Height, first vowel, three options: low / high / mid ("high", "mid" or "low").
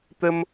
mid